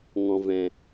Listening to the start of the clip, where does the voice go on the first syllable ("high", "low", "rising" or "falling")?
low